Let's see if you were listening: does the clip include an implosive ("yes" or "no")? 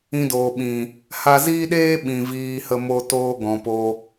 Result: yes